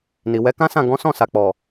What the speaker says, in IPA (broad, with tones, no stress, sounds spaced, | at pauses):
n i˨ w ɛ˨˦ k ã˦ s ã˦˨ ɡ ɔ̃˨˦ s ɔ̃˦˨ s a˨ k͡p ɔ˨